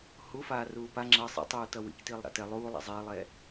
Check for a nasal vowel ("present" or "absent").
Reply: absent